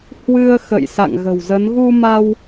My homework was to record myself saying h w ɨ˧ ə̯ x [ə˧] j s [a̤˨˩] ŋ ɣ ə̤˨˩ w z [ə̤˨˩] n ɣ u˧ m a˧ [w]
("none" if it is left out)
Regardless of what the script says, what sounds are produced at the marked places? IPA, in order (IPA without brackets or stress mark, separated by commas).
ə̰˧˨, a̰˧˨, ə˨˦, w